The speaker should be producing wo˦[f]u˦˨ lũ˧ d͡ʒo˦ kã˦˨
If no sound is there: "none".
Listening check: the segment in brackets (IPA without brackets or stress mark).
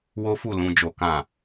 f